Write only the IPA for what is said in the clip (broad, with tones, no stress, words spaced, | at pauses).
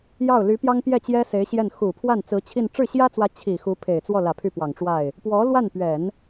jɑ˥˩ʊ̯ ly˧˥ pjɑ˥ŋpjɛ˥˩t͡ɕjɛ˥ se˧˥ɪ̯ɕjɛ˥˩n xu˨˩pʰwa˥˩n t͡sɹ̩˧˥t͡ɕʰi˥˧n ʈ͡ʂɻ̩˥˩ɕjä˥t͡swä˧˥ t͡ɕʰi˨˩ xu˧˥pʰe˨˩ɪ̯t͡swɔ˥˩lä˨˩ pʰy˥˩pwɑ˨˩ŋʈ͡ʂwa˥˩ɪ̯ | pwɔ˧˥lwa˥˩npɥɛ˨˩˦n